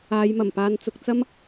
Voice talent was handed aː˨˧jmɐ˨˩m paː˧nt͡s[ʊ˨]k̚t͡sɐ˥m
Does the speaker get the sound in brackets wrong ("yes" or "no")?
yes